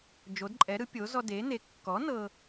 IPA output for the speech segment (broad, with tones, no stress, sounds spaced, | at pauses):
d͡ʒ o˩˥ d ǃʼ ɛ˩˥ ɾ ɯ˩˥ pʲ o˩˥ z ɔ˦ d e˩˥ n e˩˥ kː ɔ˩˥ n ɤ˦